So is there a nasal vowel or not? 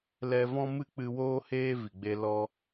yes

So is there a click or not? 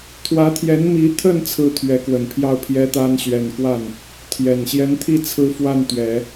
no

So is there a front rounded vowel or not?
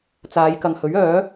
yes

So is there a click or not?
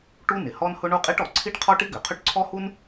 yes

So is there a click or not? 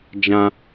no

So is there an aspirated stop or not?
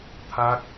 yes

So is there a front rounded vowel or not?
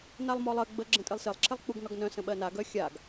yes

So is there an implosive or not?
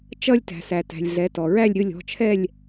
no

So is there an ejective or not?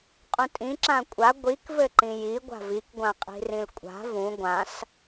yes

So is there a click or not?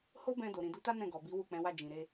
no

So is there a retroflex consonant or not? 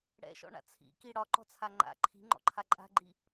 yes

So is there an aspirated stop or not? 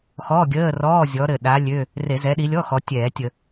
no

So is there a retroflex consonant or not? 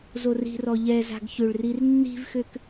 yes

